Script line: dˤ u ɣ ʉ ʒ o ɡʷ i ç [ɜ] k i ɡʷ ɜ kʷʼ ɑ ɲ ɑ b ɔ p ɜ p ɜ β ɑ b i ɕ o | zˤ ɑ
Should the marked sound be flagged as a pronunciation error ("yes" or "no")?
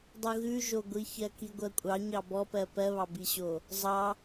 no